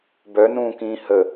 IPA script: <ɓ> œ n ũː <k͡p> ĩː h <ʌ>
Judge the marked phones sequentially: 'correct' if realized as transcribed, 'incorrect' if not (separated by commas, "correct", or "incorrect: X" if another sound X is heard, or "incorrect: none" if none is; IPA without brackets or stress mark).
incorrect: b, incorrect: k, incorrect: ə